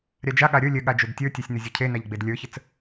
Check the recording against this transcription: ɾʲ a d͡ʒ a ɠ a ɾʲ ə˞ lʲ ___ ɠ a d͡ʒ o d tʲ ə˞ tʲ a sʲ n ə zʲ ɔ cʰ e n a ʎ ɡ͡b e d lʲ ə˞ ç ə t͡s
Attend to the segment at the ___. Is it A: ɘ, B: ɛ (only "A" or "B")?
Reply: A